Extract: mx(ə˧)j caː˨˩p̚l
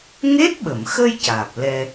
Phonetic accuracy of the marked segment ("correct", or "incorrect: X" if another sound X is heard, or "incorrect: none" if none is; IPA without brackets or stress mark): correct